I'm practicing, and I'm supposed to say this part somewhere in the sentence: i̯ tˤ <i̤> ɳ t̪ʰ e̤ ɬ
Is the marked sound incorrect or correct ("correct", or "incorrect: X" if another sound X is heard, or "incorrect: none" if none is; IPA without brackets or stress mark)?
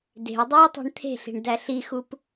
incorrect: e̤